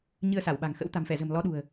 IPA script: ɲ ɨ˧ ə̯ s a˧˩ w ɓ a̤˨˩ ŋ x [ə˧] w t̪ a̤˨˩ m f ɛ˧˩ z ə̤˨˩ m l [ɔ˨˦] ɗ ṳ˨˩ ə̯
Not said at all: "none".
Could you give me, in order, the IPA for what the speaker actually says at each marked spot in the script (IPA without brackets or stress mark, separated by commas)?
ə̰˧˥, ɔ˨˦